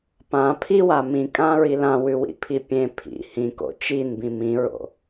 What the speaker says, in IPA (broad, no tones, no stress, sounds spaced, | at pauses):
p ã pʰ i w a m ĩ kʼ ã ɹ i l ã w ʉ w ḭ pʰ i pʲ ẽ pʰ ḭ h ĩ k o̰ t͡ʃ i n b ĩ m ĩ ɹ o̰